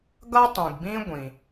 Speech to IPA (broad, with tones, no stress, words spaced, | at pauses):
ɡʌ˥tˤĩ˩ɡbĩ˥ ɡʷĩ˩